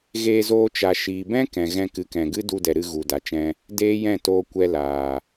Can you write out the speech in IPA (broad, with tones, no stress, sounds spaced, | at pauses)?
ɣ eː˧ z oː˧ t͡ʃ a˨ ʃ iː˨ b ɛ̃˦ k ɛ̃˨ ɣ ɛ̃˧ k ɨ˨˦ k ɛ̃˨ ɡ ɨ˦ d u˧ d ɛ˨ ɾ ɨ˧ ɣ u˨ d a˨ t͡ʃ ɛ̃˧ | d eː˦ j ɛ̃˦˨ t oː˧ kʷ ɛ˧ l aː˨